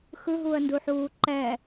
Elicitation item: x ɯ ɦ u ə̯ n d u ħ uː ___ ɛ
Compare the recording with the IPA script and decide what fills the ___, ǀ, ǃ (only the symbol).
ǃ